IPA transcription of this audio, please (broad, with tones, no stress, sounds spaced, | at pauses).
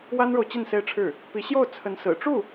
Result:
w a˥ n ɻ o˨ ʊ̯ t͡ɕ i˥˩ n s e˥ ɪ̯ ʈ͡ʂʰ ɻ̩˥˩ | p i˧˥ ɕ j o˥˩ ʊ̯ t͡sʰ ə˧˥ n s ɹ̩˨˩ ʈ͡ʂ u˥˩